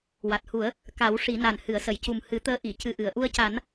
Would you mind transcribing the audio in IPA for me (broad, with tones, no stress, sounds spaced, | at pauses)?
w a˨˩ t̚ h u˨˩˦ ə̯ | k a˨˩˦ w ʂ i˨˩˦ n a˨˩ n h ɨ˨˩˨ ə̯ s ə˨˩˨ j c u˨˩ m h ɨ˨˩˦ t̪ əː˧˥ ʔ i˨˩˨ c ɨ˧ ʔ ɨ˨˩˨ ə̯ ʔ u˧ ə̯ c a˨˩˦ n